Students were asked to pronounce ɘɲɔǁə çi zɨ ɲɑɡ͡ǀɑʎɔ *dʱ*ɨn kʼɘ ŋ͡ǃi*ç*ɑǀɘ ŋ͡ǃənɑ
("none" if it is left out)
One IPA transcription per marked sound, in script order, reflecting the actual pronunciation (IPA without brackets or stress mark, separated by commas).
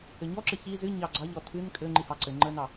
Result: tʰ, h